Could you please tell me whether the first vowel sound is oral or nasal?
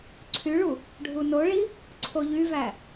oral